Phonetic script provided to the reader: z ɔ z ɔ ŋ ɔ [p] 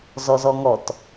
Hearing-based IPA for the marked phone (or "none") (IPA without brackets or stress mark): t